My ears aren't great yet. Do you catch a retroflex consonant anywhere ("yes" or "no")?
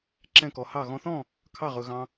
no